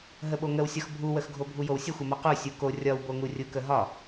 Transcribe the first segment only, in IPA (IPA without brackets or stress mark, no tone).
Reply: ɦ